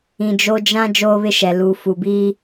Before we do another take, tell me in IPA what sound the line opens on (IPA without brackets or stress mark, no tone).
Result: ĩ